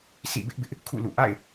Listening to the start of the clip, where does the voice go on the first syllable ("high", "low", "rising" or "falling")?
falling